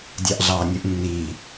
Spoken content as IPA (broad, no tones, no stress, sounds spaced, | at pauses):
dʲ ɑ ʔ ɮ ɑː nʲ ɯ ʔ nː i